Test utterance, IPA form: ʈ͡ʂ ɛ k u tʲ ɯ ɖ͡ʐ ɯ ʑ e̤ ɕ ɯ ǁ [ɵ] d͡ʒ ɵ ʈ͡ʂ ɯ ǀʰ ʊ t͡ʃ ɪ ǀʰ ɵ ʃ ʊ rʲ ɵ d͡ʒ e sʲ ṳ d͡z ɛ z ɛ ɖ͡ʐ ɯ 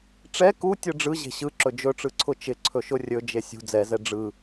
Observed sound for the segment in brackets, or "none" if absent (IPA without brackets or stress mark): ɵ